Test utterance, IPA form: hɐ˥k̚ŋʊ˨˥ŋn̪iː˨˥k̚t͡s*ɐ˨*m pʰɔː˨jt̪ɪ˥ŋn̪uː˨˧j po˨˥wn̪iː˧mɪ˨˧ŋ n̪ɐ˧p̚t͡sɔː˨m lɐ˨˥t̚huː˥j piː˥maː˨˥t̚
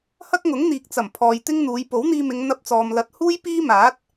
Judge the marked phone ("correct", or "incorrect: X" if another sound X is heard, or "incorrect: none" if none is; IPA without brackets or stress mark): incorrect: ɐ˨˩